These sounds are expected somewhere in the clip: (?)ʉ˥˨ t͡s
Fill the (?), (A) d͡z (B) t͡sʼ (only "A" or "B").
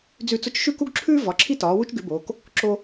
A